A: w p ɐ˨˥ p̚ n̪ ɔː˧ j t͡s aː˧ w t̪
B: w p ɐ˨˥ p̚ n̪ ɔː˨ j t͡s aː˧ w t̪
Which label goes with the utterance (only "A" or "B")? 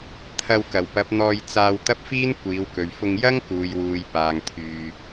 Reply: A